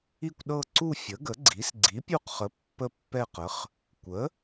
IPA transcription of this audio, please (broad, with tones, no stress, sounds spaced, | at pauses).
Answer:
i˦˨ kʷ ɗ ɤ˦˨ ǀ u˦˨ fʲ ə˩˥ ɡ ə˩˥ ɡ͡ǀ i˩˥ s ɡ͡ǀ i˩˥ pʲ u˦˨ q χ ə˩˥ pː ə˦˨ pː ɛ˦˨ q ə˩˥ χ | kʷ ə˩˥